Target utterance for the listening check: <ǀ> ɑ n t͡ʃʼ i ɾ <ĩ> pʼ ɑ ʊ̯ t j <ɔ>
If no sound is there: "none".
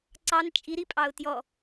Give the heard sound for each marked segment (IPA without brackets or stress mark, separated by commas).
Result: ǀ, i, ɔ